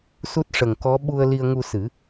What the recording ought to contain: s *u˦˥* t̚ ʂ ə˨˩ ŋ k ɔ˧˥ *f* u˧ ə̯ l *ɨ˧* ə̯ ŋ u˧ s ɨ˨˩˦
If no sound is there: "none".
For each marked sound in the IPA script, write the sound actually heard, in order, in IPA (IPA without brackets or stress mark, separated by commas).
u˦˥, ɓ, i˧